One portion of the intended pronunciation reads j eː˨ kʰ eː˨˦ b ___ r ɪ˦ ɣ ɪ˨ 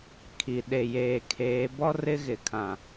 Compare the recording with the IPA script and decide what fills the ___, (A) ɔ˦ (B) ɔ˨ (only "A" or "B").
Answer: A